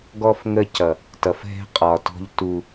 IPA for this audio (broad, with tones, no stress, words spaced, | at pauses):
ɡɔ˦fŋə˦cʌ˨ | tʌ˨fɦɛ̤˦ qʼɒ˨tɔ̤˦ʎ tu˦